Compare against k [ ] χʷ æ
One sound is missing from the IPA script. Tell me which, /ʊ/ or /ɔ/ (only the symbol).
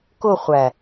ʊ